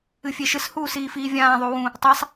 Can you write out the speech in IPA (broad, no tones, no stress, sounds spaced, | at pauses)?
ɨ fʲ e ʃ ɨ s h uː s iː f iː vʲ ãː ðˤ u w ũ | tˤ a sˤ